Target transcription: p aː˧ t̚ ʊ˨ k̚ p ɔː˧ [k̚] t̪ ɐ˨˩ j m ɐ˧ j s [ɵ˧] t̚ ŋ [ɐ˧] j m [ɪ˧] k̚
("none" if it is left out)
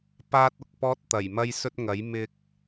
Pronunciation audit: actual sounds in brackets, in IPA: t̚, ɵ˧, ɐ˨˥, ɪ˧

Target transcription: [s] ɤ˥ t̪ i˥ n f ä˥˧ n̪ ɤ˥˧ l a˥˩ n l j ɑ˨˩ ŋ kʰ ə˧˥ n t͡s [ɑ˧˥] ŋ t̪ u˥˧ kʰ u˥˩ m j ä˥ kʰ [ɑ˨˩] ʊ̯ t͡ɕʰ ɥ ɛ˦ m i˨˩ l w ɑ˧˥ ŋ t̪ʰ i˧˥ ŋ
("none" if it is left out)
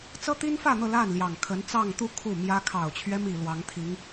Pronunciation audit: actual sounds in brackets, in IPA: t͡s, ɑ˥˧, ɑ˨˩

